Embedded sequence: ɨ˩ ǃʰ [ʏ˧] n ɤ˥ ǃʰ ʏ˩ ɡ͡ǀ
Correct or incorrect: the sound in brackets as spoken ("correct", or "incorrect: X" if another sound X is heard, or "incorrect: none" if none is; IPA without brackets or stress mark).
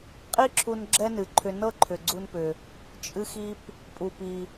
correct